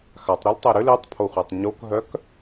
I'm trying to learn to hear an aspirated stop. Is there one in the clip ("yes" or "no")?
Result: yes